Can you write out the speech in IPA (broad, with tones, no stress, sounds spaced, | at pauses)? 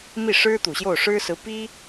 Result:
m i˥˩ ʂ ɻ̩˥ t̪ u˨˩ ɕ j o˥˩ ʊ̯ ʂ ɻ̩˥ s ɹ̩˧˥ p i˥